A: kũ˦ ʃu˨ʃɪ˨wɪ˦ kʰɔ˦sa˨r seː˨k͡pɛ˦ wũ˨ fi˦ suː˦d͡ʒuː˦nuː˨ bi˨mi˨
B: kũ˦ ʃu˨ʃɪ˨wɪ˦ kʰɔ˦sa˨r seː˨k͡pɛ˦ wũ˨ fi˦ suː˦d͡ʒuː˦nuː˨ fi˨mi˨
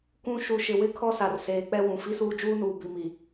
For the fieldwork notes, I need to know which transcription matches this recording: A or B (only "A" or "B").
A